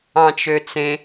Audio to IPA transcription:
ɑ̃ t͡ʃ ø t͡s ẽ

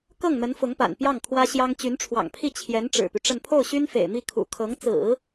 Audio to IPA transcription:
k ɤ˥˩ ŋ n̪ ə˧˥ n f ʊ˧˥ ŋ p a̰˨˩ n p j ɑ˥˩ ŋ kʰ w ä˥ ɕ j ɑ˥ ŋ t͡ɕ y˧˥ n ʈ͡ʂʰ w ɑ̰˨˩ ŋ pʰ i˥˩ t͡ɕʰ j ɛ˧˥ n ʈ͡ʂ ɻ̩˨˩ p y˦ ʈ͡ʂ ə˥˧ n pʰ o˥˩ ʊ̯ ɕ y˥ n f ḛ˨˩ ɪ̯ m i˥˩ kʰ ṵ˨˩ kʰ ɤ˧˥ ŋ t͡s ɹ̩˨˩˦

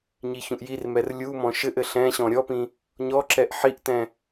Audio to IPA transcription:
ɲ i ç ũ ʔ j i r m ɛ r lʲ u m ɔ̃ ʃ ɘ ʔ ɘ ɬ ɛ̃ ɕ ɔ̃ ɾʲ ɔ p ĩ | ɲ ɔ ǁ ɛ ʔ ħ i ʔ t ɛ̃

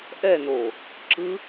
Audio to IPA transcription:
ʔ ɛ n oː | ǁ ɯ

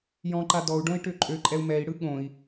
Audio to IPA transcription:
j ɔ̃ ǃ a d ɔ u̯ ɖ õ i̯ ʈ ø ǃʼ ø ǃʼ ɛ u̯ m ɛ i̯ ɽ ɯ ɠ õ i̯

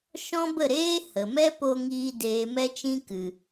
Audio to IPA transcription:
ʃ ɔ̃˦ b ə˦˨ ɾ eː˦ h ə˨ m ɛ˦ p o˧ ŋ iː˧ d eː˨ m ɛ˧ t͡ʃ ĩ˧ k ɨ˨

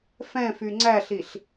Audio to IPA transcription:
f ɛ̃ f y ŋ͡ǀ æ ɬ i ɬ

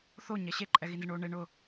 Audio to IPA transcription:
θ o ɲ ɛ ɕ e ǃʼ ɛ ɣ i n z ɪ ɳ o ɳ e ɳ ʊ

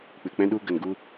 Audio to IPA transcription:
k͡p ɨ˨ k͡p ɛ̃˧ ɗ u˧ ɡ ə˨ n ɡ u˧

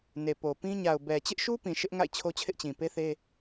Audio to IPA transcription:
n e˨ p o˨ p ĩ˦ ɲ a˨ ʊ̯ b ɛ˨ t͡ɕ ɪ˦ ʔ ʃ u˦ p ĩ˨ ʃ ɪ˦ ʔ ŋ a̰˦˨ ɪ̯ t͡ɕʰ o˦ t͡ɕʰ ɪ˦ ʔ t͡ɕ ĩ˨ p e˦ θ e˦

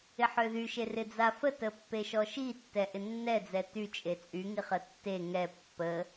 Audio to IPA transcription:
ɪ ħ ø ð y ʃ e r ɪ d͡z a f ə t ə pː e ʃ ɔ ʃ i tː ɛ ʔ ɪ nː ɛ d͡z ɛ t y t͡ʃʼ e t͡sʼ y ŋ i χ ə tː e ŋ ɛ pː ə

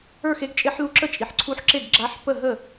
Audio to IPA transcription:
ə˞˥˩ x e˧˥ ɡ t͡ʃʼ e˧˥ ħ l u˧˥ ǁ ə˥˩ t͡ʃʼ i˨˩ ħ ǀʰ u˧˥ ħ ǁ e˥˩ ɡ ɡ͡ǁ a˧˥ ħ p ə˥˩ ɦ ə˥˩

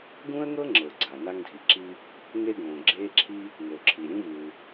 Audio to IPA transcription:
ɡ ũ˥ ə̯ ŋ ɤ˥ ŋ͡ǁ ɤ˩ ɡ͡ǀ a˩ n a˥ ŋ dʱ i˩ ǁ i˥ | ŋ e˥ ɡ õː˩ ɡ͡ǁ eː˥ ǁʰ i˥ | ŋ o˩ ǁʰ i˩ ɾʲ ũ˥ v ɯː˩

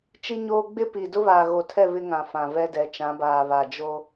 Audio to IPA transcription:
t͡ʃ i˦ ɲ oː˦ ɡ͡b ɪ˦ p i˨ d ʊ˦ β aː˨ ɣ o˨ tʰ ɛ˦˨ β ɪ˦ ŋ ã˨ f ã˨ v ɛ˦ d ɛ˨˦ t͡ʃ ã˨˦ b aː˨ β a˨ d͡ʒ o˦

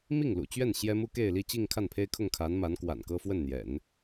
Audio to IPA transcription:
m i˥˩ ŋ l ṵ˨˩ t͡ɕ ɥ ɛ˥˩ n ɕ j ɛ˥ m u˥ k e˥˧ ɪ̯ l i˥˧ t͡ɕ i˥˧ ŋ kʰ a˥˩ n pʰ e˥ ɪ̯ kʰ ʊ˥˩ ŋ kʰ a˧˥ n m a˧˥ n k w a̰˨˩ n k ɤ˥ f w ə˥˩ n n̪ j ɛ̰˨˩˦ n

